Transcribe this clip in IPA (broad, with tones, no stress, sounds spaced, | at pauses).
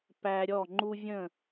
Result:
p æ˧ ɾʲ ɔ˦˨ ŋ͡ǃ u˦ vʲ ə̃˦˨